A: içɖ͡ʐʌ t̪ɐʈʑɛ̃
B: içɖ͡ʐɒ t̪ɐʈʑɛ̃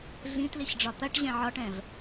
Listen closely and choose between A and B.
B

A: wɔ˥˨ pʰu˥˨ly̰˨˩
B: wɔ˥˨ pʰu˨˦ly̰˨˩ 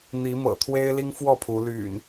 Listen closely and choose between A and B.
B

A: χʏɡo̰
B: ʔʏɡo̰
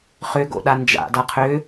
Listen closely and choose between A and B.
A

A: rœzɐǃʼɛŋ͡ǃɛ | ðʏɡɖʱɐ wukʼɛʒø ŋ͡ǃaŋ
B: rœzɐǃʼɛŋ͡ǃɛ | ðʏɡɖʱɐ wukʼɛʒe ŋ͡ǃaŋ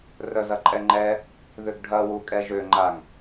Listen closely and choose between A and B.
A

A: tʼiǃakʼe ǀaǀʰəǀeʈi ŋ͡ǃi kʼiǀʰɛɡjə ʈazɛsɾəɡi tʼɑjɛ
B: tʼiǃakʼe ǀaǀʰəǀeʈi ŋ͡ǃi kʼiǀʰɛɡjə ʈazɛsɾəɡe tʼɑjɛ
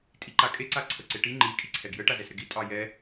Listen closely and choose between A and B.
A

